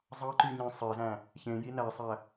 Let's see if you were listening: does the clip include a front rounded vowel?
yes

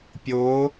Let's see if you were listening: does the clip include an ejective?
no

